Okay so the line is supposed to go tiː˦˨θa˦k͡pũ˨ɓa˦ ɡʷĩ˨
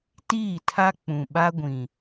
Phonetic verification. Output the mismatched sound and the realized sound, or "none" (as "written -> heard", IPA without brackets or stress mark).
θ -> tʰ